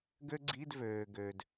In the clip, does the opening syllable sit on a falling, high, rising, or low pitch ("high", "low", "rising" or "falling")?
high